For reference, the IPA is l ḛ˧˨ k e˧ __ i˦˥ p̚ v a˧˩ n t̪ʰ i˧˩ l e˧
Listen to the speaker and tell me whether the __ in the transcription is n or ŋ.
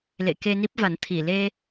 n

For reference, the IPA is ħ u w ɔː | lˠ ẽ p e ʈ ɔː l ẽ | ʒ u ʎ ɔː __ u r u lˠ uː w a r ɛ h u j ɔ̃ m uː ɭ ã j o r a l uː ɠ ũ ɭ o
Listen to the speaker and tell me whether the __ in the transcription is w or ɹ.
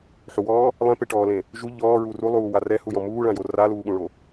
ɹ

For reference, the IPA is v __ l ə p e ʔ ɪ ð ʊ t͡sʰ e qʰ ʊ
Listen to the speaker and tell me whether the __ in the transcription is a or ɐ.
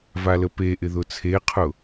a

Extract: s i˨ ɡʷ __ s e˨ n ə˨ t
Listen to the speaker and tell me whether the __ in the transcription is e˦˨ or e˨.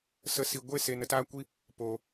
e˦˨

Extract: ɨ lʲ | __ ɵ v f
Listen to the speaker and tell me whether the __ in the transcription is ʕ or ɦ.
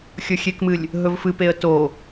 ɦ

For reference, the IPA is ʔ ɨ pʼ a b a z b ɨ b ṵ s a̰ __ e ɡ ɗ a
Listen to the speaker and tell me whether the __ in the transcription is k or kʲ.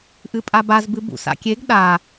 kʲ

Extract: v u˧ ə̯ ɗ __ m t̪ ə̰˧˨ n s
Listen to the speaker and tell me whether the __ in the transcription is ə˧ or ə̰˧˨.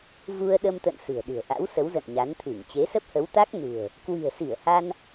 ə˧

